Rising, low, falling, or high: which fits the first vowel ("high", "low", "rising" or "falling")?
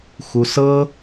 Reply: high